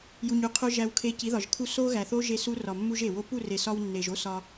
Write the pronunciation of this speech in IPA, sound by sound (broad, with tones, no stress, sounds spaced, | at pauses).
j u˨ ɲ u˨ qʰ o˧ ʒ æ˧ w kʰ e˧ c i˨˦ ð ɒ˨ ʒ kʰ u˧ s o˦ ɣ æ˨ θ o˦ ʒ e˧ s u˧ r ɒ˨ mː u˧ ʒ e˨ w o˦ p u˦˨ r e˨ s ɒ˧ w nː e˨ ʒ o˦ s ɒ˧